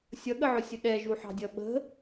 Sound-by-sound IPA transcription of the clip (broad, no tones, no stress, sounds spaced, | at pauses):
sʲ ʌ ɠ ə ʕ ʊ sʲ ʊ ɗ ɛ ʒ u ħ ɑ̤ dʲ ʌ ɓ ə̤